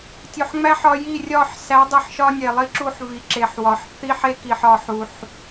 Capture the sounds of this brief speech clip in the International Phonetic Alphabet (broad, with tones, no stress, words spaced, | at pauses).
tʲo˨ħŋ͡mæ˦ħ ɒ˦ ji˦˨ rʲɒ˦˨ħ sæ˨˦dˤi˨ħʃɒ˦ nʲe˨lˠi˦ǁu˦ħvi˨ ǁe˨ħ wɒ˨ħ θi˦ħe˦ki˨ħɒ˨ ħu˨ħ